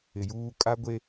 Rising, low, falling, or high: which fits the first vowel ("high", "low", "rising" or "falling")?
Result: low